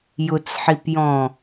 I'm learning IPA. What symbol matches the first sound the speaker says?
j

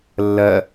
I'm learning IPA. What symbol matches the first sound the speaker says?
lː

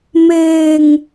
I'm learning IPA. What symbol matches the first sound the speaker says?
m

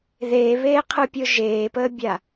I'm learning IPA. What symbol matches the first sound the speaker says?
ð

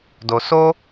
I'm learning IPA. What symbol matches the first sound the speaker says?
d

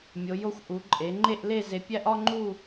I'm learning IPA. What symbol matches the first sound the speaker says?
mʲ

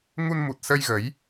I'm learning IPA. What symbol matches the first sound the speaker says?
ŋ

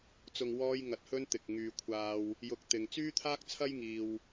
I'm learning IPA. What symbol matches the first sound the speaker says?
t͡s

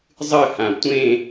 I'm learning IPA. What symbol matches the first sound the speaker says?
zˤ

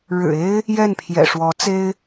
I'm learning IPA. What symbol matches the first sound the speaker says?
ɻ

